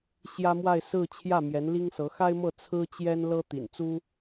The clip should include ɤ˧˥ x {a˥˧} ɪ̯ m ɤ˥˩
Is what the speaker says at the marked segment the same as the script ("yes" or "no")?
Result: no